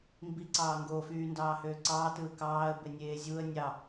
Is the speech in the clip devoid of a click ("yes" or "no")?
no